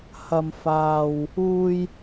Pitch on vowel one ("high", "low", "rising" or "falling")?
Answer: low